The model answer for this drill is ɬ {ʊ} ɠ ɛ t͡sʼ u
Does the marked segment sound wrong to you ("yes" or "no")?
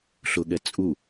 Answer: no